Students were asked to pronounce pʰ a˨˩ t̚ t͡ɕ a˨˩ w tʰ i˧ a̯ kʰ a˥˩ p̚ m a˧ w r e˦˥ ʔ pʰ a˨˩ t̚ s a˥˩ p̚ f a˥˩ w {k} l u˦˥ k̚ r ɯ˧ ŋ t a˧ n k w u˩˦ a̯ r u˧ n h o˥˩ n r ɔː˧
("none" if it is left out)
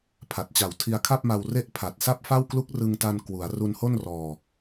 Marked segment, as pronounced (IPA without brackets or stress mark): k